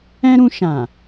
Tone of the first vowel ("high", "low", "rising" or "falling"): high